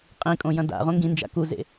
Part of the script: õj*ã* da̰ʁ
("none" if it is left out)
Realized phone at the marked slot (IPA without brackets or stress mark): ɐ̃